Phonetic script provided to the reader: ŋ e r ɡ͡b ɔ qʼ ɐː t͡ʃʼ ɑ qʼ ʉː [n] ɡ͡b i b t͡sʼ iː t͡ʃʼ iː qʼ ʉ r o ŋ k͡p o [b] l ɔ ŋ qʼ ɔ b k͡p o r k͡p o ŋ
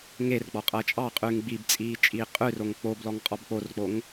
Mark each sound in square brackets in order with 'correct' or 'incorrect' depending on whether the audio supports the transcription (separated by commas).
incorrect, correct